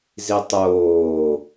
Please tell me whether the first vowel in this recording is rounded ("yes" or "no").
no